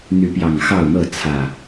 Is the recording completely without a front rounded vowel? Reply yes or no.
no